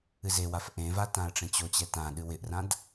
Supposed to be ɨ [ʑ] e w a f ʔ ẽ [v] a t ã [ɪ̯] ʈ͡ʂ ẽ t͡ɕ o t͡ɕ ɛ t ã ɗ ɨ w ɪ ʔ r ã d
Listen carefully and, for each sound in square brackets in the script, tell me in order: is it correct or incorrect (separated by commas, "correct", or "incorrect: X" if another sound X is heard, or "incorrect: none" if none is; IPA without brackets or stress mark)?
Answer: incorrect: z, correct, incorrect: ə̯